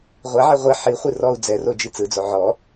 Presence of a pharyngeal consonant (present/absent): present